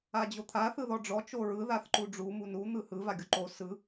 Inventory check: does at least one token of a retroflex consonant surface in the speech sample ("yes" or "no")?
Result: yes